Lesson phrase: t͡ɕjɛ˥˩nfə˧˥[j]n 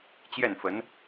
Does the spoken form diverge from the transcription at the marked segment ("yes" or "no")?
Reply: yes